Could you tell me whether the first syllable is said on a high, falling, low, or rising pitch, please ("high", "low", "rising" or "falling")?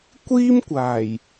high